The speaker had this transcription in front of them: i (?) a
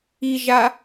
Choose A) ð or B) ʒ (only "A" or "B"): B